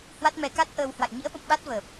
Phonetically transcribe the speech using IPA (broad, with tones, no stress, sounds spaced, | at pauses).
h w a˦˥ t̚ m ɛ˧ k a˦˥ t̚ ʔ əː˧ w h w a̰˧˨ j ɲ ḭ˧˥ ə̯ ɓ ə̰˧˨ m ɓ a˦˥ t̚ v əː˨˩ p̚